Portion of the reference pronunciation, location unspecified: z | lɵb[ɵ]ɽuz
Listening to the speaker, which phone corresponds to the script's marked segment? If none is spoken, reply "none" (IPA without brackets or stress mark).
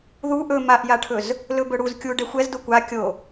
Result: ɵ